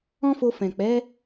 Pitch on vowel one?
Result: high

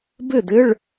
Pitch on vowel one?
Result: falling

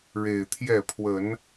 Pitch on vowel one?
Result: low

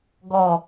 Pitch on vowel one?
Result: falling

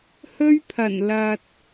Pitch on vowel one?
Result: high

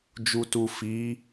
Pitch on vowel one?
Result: low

